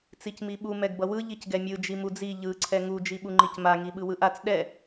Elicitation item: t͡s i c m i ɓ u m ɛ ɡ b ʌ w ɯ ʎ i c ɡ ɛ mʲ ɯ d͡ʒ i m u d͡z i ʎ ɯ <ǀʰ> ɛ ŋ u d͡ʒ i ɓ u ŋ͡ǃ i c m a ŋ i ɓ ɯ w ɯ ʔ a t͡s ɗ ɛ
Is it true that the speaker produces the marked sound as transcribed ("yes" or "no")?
yes